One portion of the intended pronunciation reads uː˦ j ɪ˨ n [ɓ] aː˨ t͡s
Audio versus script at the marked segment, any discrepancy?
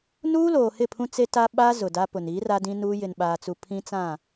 no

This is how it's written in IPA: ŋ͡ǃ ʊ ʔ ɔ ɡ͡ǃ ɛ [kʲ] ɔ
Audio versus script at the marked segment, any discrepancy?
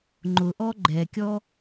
no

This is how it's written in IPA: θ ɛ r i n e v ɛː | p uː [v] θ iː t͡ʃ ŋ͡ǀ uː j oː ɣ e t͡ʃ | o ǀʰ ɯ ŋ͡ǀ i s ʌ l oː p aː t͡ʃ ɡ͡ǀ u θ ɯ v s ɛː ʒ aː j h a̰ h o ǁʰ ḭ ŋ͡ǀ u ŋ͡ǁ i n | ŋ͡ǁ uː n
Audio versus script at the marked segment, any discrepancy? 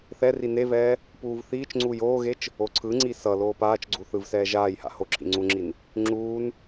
no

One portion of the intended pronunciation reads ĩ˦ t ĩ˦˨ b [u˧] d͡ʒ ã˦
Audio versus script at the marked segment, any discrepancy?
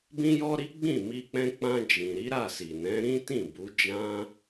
yes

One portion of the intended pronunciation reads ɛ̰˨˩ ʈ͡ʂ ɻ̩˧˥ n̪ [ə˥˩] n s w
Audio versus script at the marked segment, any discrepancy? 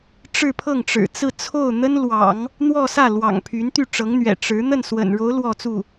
no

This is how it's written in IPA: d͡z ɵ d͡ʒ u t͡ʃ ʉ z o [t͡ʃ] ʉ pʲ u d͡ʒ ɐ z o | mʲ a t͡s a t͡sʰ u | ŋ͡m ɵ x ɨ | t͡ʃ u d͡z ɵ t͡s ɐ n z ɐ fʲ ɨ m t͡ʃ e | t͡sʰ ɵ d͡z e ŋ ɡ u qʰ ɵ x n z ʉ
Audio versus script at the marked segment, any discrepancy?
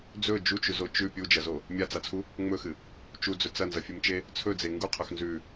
no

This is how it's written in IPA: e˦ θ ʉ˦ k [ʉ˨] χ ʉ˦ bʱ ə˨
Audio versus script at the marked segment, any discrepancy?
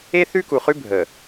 yes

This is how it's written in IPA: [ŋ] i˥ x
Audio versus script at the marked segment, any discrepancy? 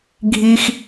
yes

